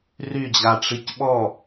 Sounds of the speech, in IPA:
ryd͡ʑaʈ͡ʂic ɓɔ

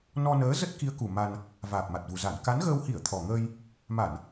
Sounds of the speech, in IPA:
nɔ˧nəː˨˦ zə˦˥t̚ki˨˦ə̯ku˨˩ ma˧n | vaː˨˩p̚ma˨˩t̚vu˨˩za˧˩n ka˨˦nɣəː˧w hi˧˩ə̯t̪ʰɔ˨˩ŋəː˧j | ma˧˩˨n

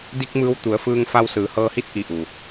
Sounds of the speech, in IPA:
di˧k̚ mɯː˧wt̪u˩˧ə̯fɯː˧ŋfa˧w sɯː˩˧hɤː˧hi˧˥t̚ ʔi˧˩ʔu˩

